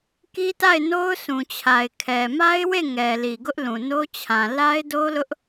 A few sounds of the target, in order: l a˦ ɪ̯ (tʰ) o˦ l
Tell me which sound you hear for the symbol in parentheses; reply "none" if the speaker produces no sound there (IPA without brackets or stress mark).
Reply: d